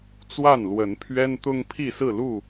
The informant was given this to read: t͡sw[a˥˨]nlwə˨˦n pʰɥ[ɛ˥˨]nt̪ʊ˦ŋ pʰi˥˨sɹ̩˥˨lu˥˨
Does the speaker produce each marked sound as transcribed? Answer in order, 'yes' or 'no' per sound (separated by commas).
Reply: yes, no